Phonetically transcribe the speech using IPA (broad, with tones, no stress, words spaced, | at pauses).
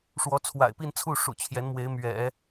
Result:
ʂwɔ˧˥t͡sʰwa̰˨˩ɪ̯pi˥˧nt͡sʰu˥˩ ʂṵ˨˩t͡ɕʰjɛ˧˥nmwe˧˥ɪ̯ mɥɛ̰˨˩˦